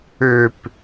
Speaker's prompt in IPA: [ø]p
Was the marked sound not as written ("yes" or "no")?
no